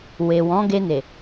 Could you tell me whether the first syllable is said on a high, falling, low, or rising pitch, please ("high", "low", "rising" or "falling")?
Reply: low